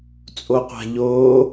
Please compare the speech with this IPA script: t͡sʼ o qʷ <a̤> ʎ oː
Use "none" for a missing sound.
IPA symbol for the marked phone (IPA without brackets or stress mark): a̤